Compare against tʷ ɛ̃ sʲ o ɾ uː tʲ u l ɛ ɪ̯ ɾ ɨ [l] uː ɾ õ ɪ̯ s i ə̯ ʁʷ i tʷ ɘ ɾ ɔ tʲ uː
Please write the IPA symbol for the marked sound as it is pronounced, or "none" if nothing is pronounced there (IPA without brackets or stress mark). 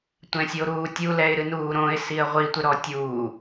n